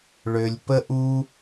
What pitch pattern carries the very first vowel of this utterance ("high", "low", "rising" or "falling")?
low